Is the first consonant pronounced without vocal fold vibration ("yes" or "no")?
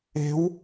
no